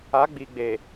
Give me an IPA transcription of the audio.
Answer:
a˨˦ ɡ͡b iː˨ ɡ͡b eː˨

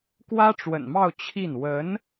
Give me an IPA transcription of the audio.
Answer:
k w ä˥ ʈ͡ʂ w ə̰˨˩ n m ɑ˥˧ ʊ̯ t͡ɕʰ i˥˩ n w ə˧˥ n

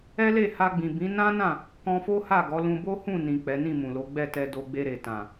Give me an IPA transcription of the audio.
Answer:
ɛ˦ l e˦˨ h a˧ ɡ͡b ĩ˨ b ĩ˨˦ n ã˦ n ã˦˨ | k ɔ̃˧ f o˦ h a˦˨ ɡ ɔ˨˦ l ũ˧ b o˦ h ũ˦˨ n ĩ˨ k͡p ɛ˨˦ n ĩ˦˨ m ũ˨ l o˨˦ ɡ͡b ɛ˦˨ t ɛ˧ d o˧ ɡ͡b e˧ ɾ e˨ t ã˨

